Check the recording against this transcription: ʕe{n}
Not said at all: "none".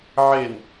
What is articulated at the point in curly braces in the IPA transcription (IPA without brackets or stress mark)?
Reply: n